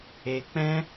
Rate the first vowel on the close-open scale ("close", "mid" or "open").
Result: mid